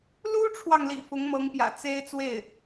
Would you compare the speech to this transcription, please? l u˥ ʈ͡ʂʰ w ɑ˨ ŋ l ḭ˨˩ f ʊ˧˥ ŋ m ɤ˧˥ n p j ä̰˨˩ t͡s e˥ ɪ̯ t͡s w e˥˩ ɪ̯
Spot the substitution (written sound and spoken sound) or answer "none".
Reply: n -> ŋ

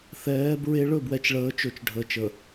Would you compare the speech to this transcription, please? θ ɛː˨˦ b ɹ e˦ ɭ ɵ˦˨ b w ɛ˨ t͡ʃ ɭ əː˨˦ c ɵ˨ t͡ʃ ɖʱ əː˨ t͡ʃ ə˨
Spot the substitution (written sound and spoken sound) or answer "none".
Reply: c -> t͡ʃ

